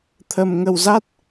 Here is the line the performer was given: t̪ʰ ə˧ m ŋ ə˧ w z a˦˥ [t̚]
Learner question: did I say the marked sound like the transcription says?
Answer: yes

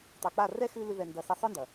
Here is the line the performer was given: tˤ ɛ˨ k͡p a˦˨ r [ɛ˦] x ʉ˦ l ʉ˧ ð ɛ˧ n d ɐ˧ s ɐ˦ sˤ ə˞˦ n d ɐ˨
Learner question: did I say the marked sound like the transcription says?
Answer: yes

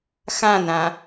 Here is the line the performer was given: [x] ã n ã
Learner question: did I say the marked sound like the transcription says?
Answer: yes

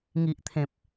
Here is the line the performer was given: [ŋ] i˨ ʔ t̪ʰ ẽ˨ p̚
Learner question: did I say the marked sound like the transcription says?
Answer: yes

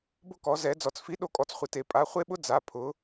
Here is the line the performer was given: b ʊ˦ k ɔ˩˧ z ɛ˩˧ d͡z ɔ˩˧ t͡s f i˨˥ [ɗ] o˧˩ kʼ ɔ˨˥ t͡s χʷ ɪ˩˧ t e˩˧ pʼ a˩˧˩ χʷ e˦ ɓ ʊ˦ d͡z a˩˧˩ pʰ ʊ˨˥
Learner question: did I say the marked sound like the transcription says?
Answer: yes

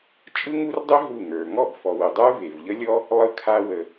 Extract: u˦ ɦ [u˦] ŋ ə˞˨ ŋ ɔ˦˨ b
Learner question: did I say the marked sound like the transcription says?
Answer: no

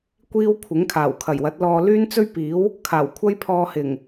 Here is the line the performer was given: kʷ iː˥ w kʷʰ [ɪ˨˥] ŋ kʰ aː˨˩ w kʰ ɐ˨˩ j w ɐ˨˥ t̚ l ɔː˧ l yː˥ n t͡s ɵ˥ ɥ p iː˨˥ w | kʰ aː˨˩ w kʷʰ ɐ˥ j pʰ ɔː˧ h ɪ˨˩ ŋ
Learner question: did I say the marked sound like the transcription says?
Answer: yes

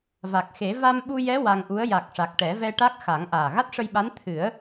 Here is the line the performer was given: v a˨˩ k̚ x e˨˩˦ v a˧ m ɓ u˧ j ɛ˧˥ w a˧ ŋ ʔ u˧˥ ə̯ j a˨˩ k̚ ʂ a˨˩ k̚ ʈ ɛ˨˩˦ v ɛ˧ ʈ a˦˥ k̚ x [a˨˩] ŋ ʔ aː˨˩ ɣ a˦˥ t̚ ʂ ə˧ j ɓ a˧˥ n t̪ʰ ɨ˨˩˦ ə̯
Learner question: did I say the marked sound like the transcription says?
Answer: no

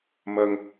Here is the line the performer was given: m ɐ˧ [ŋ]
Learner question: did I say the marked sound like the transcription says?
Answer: yes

